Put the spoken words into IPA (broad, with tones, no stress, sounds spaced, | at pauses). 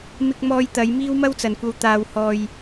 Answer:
m ɪ˧ k̚ m ɔː˧ j t̪ ɐ˨˧ j m iː˥ w m ɐ˥ w t͡s ɐ˨ n kʷ ɐ˧ w t̪ aː˧ w h ɔː˧ j